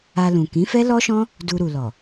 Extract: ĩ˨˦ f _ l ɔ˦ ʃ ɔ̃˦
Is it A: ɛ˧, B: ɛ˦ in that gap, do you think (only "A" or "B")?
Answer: B